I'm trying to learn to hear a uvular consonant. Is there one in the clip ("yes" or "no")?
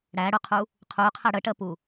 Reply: yes